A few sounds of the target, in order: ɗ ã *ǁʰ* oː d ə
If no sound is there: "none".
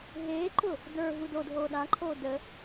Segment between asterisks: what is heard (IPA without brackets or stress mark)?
ǃʰ